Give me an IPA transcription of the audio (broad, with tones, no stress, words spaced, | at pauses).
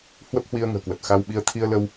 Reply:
hwə˦˥p̚hwi˧ə̯ŋə̤ː˨˩kwə˨˩t̚ xa˧wɓi˧ə̯ t̪ʰi˧ə̯lə˧w